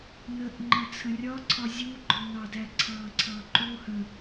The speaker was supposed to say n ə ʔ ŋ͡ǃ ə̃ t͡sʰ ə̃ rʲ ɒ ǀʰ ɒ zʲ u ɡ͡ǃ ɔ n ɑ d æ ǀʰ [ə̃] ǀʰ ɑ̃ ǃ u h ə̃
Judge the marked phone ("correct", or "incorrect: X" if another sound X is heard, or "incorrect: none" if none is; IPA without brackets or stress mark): incorrect: ɑ̃